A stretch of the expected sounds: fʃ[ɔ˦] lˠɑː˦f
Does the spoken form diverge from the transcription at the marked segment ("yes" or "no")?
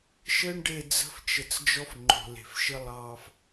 yes